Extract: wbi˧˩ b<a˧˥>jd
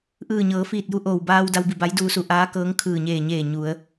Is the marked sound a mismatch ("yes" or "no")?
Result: no